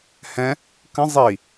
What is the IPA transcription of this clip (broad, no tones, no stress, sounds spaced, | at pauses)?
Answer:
h ɛ̃ | k ə̃ zˤ i